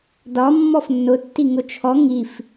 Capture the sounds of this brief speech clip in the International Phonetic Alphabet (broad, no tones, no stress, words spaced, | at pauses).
dɒ mːɔfnːʊ tːiŋʊt͡ʃʰɔ ŋif